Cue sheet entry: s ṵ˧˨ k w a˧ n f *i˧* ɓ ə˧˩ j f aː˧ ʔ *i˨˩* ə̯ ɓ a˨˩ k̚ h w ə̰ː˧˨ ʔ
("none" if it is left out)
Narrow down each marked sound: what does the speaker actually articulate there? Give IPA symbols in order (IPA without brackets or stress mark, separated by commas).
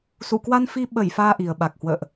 i˧, i˨˩